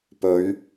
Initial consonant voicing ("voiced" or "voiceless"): voiceless